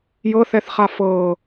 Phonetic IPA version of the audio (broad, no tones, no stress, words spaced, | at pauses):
jɤθɛθχa fɤ